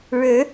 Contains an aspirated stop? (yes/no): no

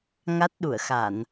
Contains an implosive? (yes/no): yes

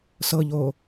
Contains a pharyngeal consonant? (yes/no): no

